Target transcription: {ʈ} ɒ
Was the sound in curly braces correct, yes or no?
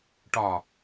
yes